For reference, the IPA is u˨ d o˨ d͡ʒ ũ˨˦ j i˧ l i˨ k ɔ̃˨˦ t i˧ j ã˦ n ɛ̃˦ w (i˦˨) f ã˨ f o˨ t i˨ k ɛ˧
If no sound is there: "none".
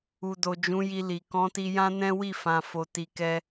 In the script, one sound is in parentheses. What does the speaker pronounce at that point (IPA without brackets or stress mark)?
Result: i˦˨